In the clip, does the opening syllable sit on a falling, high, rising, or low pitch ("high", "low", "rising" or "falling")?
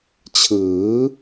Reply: rising